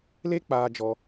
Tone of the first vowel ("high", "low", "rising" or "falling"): high